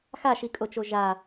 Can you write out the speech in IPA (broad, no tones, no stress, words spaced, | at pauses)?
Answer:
xaʃikʼot͡ʃo ʒa